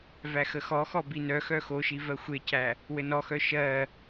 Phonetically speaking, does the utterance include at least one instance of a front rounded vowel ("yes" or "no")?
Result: yes